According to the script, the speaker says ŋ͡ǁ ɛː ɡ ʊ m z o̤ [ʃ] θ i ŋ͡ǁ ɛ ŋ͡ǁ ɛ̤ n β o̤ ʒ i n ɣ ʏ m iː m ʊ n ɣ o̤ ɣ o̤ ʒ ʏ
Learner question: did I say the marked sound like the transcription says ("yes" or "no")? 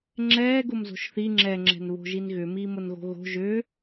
yes